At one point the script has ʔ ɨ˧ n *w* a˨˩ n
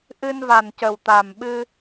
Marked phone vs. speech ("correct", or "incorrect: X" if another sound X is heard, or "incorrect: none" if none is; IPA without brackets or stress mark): incorrect: v